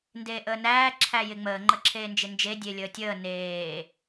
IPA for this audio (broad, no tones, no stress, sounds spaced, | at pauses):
n d eː ʔ əː n æː ǁʰ æ j ɪ ŋ͡m əː ŋ͡ǃ ə ǁʰ eː n d͡ʒ ɪ n d͡ʒ e dʲ e lʲ əː tʲ əː n eː